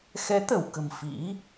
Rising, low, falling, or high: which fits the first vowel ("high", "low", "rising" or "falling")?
rising